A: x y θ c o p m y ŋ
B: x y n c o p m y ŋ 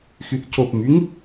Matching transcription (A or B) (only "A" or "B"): A